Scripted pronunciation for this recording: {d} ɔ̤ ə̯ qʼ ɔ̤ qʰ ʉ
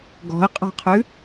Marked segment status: incorrect: ɡ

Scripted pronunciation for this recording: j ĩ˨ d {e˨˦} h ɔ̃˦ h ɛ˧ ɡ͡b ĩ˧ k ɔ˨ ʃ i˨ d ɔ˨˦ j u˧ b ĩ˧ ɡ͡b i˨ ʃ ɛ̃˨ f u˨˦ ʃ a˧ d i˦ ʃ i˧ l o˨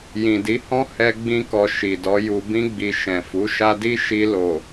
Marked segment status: incorrect: i˨˦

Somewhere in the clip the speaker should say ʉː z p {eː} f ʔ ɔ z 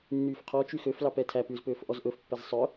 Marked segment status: incorrect: øː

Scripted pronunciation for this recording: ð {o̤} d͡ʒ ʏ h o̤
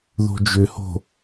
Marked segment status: correct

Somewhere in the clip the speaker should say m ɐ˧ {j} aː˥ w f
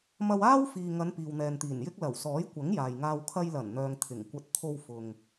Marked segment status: incorrect: w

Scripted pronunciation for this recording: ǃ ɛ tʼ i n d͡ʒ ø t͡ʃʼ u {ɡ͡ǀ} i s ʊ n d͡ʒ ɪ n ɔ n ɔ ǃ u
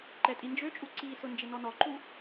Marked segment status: incorrect: ǀ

